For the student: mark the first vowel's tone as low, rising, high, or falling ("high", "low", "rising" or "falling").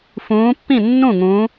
rising